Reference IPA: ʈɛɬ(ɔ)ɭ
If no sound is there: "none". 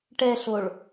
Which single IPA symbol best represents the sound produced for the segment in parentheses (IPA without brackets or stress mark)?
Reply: o